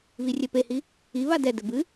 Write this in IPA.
β i rʲ ɛ p e h i | i β a d ɛ d ɘ b ɨ

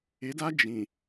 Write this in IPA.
ɪ˨˦ d a˦ d͡ʒ ĩ˨

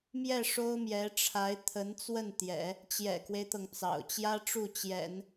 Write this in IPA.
m j ɛ˥˩ ʂ o˥ ʊ̯ m j ɛ˧˥ ʈ͡ʂʰ a˧˥ ɪ̯ t̪ʰ ə˧˥ n t͡s w ə˥˩ n t̪ j ɛ̰˨˩˦ | t͡ɕ j ɛ̰˨˩ k w e˦ ɪ̯ t̪ ɤ˩ ŋ t͡s ɑ̰˨˩ ʊ̯ t͡ɕ j ä˥ ʈ͡ʂ u˥˩ t͡ɕ j ɛ̰˨˩˦ n

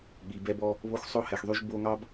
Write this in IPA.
ɠ i˨ b ɛ˧ b ɔ˧ | β o˦ x sˤ o˦ h ɛ˨ x ðˤ y˧ ʒ b o˧ ŋ ɑ˦ b

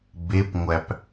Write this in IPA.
b e p ŋʷ æ p

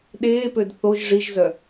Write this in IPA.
ɗ eː p ø d θ o ʒ ʐ i ʒ z œ

